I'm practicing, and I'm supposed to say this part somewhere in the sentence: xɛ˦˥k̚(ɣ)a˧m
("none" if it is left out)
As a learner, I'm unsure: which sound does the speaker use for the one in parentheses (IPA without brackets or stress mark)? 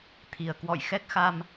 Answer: x